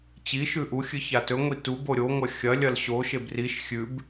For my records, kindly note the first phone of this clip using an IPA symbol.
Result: t͡ɕ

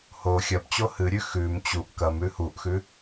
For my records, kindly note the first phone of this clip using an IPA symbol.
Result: h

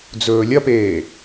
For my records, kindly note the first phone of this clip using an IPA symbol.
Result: d͡z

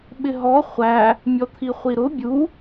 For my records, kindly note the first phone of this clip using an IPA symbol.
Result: ɓ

